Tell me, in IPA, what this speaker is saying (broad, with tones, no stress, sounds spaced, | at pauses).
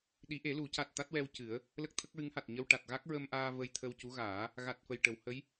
ɗ i˨˩˦ ʔ e˨˩˦ l u˨˩˦ c a˨˩ t̚ t̪ a˦˥ t̚ w ɛ˧ w c ɨ˨˩˦ ə̯ | l ə˦˥ k̚ t̪ʰ ə˦˥ k̚ ɹ ɨ˧˥ ŋ h a˨˩ t̚ ɲ ə˧ w ʈ a˨˩ t̚ ɣ a˦˥ k̚ ɹ ə˧ m ʔ aː˧ v ə˧ j t̪ʰ ə˧ w c u˧˥ ɣ aː˨˩˦ | ɣ a˨˩ t̚ f ə˨˩ j ʈ ə˨˩˨ w h ə˧˥ j